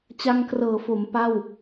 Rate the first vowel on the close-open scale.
open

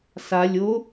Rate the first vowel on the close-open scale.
open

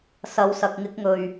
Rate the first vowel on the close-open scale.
open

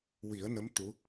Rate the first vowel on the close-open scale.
close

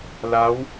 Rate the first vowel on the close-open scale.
open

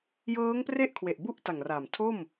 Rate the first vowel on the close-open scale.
mid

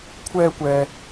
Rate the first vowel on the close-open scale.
mid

